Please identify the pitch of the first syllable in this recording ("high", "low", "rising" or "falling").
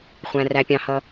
low